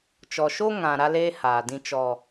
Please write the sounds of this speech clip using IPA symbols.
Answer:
t͡ʃ ɔ˨ ʃ o˦ ŋ ã˨ ɾ a˦ l eː˦ h aː˨ d ĩ˦ t͡ʃ ɔ˦

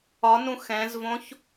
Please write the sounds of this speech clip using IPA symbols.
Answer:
ɒ n ũ x ɛ̃ z v õ ç

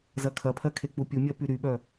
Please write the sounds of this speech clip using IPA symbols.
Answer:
z ɐ kʰ ɐ pʰ ɜ kʰ e k͡p u pʲ u mʲ ɜ p y ɾ y ɓ œ

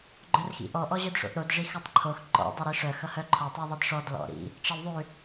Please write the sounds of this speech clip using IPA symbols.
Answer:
ɡ͡ǃ œ r x ḭ ʔ ɔ ʔ ɔ ʑ œ d ʂ o̰ ʔ ɾ o d ʐ i x œ tˤ ǃʰ o x ǃ ɔ̰ dˤ i ɾ i ʂ œ x ʌ h œ ǃʰ ɔ tˤ œ ðˤ i d ʂ ɔ d l ɔ̰ ɾ ḭ | ʈ͡ʂ ʌ l ðˤ ʉ

